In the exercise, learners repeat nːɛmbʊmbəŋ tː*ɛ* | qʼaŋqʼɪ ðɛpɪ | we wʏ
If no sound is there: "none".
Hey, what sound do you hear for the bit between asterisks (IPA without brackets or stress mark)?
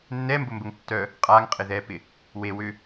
œ